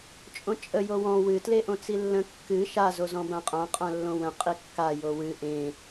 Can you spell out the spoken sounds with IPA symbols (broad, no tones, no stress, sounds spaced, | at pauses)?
t͡ʃʼ õ t͡ʃʼ ə j o w ɔ̃ w ɨ t l e ʔ õ t͡s i lː ə̃ kː ɨ ʃ a z o z ɔ̃ b ã qʼ ã qʼ ã lː õ w ə̃ qʼ i kː a j o w ɨ ʔ ẽ